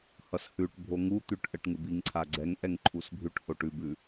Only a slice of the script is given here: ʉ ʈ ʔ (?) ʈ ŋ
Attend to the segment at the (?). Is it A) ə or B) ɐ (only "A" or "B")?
A